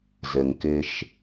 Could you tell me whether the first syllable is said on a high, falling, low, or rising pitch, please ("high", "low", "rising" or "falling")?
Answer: low